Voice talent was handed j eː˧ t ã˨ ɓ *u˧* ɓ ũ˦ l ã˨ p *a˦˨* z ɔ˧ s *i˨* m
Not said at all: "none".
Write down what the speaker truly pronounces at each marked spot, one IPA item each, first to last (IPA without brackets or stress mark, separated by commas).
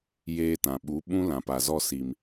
u˨˦, a˨, i˨